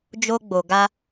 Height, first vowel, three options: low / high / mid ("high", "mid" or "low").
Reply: mid